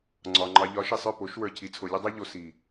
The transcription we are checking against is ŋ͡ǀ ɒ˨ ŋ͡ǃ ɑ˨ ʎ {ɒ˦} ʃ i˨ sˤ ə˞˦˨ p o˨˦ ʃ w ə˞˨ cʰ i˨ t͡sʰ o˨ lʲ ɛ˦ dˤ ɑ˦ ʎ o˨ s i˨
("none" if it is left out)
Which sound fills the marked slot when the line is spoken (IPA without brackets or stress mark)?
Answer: ɒ˨˦